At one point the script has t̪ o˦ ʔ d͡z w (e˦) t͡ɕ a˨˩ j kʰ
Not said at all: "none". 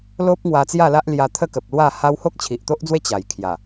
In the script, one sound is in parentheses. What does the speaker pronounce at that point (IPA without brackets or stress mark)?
e˦